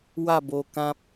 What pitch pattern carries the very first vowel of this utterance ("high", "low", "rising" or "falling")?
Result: falling